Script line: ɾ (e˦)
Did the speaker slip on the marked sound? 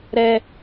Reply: yes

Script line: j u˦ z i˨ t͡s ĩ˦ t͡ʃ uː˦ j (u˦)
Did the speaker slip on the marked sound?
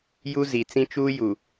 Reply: yes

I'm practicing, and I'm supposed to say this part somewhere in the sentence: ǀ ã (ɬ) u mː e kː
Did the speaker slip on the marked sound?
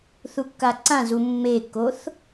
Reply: yes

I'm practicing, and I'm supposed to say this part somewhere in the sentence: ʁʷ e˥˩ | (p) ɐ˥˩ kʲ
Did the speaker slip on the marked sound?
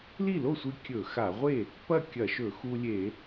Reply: no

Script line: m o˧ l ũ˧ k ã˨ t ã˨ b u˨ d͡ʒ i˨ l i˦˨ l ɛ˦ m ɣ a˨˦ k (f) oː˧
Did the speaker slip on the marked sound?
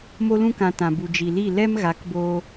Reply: yes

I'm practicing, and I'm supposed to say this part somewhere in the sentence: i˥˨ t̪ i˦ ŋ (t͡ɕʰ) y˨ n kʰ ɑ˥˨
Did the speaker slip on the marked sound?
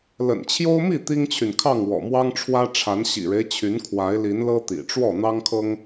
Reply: no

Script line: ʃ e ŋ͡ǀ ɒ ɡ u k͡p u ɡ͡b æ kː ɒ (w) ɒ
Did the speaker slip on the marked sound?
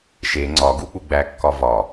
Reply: yes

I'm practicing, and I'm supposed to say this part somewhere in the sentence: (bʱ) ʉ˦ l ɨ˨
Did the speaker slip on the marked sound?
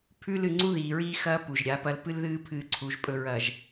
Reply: yes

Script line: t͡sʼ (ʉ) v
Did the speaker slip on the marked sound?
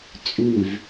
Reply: no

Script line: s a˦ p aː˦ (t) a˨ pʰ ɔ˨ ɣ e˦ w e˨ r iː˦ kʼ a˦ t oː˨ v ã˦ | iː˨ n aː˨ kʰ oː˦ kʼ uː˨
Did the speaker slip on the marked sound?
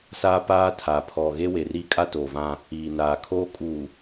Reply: yes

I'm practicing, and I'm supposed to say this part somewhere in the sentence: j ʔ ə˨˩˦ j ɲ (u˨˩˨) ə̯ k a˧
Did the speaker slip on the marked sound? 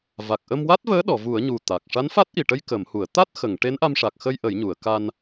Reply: no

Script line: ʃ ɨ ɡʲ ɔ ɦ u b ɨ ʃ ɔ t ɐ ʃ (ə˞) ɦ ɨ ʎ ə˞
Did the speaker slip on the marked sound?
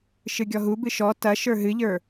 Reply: no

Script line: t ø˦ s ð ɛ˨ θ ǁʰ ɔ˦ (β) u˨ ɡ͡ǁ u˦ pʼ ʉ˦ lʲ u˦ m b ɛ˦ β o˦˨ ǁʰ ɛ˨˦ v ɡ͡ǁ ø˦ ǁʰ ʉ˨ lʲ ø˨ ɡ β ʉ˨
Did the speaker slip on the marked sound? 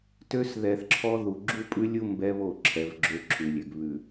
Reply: yes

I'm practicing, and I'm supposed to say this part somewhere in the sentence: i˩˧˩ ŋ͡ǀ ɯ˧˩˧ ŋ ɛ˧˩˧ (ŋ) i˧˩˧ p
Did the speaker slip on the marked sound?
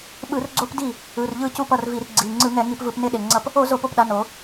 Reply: no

